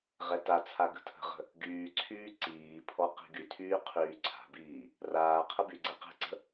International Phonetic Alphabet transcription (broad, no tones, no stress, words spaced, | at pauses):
ʁɛtat͡sʰa ɡə̤tʰə̤ʁə̤ | ɡyːǀʰyː ǀiːpʰɔ qi̤ɡytʰyː qʰyːǀʰa̤biː | raː qʰəbyɡ͡ǀɛ qɛ̤ǀə̤